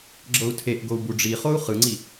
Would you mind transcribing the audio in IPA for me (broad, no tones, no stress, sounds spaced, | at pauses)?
ɡ͡ǁ ɤ u̯ tʰ e ʔ ɡ o u̯ b u ɖ͡ʐ i χ o u̯ χ ɯ ŋ͡ǀ i